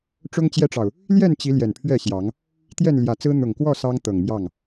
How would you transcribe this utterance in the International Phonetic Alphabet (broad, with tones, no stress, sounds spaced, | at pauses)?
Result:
ʈ͡ʂ ʊ˦ ŋ t͡ɕ j ɛ˦ ʈ͡ʂ ɑ˨ ʊ̯ | l j ɛ˥˨ n t͡ɕ i˨˦ l j ɛ˨˩ n pʰ ɥ ɛ˥˨ ɕ j ɑ˨˦ ŋ | t̪ j ɛ˥˨ n l j ä˨˩ t͡s ɹ̩˦ n̪ ʊ˨˩ ŋ k w ɔ˥˨ s ɑ˦ ŋ t̪ ɤ˨˩ ŋ m j ɑ˥˨ ŋ